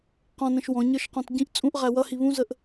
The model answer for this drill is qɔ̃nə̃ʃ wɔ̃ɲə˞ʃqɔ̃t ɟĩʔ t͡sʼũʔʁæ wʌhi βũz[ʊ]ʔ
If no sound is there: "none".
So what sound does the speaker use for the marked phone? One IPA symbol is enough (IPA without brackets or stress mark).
ə